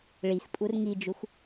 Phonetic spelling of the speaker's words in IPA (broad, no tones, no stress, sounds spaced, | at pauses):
ɭ i x pʼ u r ŋ i d͡ʒ u x